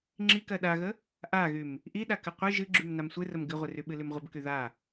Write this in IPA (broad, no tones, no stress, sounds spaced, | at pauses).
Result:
ŋ͡ǁ i k ɜ ɗ a ɣ ə | ʔ a ɣ y m | ʔ i ɗ a k ɨ qʷ ɨ ʒ ɨ ɡ͡ǁ y m n a m sʷ ɨ r ə m ɡ ɨ ʁʷ ɨ r y ɓ ɨ l y m ʁʷ ə b k y ð a